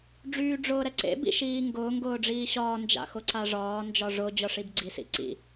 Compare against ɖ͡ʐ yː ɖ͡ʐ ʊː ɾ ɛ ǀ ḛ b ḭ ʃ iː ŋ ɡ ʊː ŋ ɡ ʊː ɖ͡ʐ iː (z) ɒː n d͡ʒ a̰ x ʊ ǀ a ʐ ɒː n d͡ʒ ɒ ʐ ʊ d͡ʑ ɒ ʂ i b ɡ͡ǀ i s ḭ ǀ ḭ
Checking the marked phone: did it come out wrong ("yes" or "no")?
yes